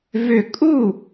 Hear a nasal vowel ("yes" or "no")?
no